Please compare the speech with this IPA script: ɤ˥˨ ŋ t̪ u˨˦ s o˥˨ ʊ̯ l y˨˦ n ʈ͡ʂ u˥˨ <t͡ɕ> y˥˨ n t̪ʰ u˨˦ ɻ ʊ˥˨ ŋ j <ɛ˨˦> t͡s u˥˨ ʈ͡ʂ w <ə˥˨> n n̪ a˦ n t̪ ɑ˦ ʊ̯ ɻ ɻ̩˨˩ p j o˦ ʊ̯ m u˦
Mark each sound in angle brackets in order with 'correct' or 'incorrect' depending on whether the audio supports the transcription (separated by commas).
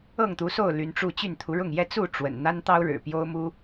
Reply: correct, incorrect, incorrect